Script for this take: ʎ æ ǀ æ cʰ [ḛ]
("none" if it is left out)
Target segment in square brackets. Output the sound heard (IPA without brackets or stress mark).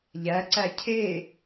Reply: e